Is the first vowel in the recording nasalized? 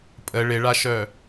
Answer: no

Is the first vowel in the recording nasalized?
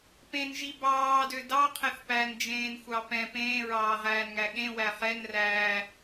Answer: yes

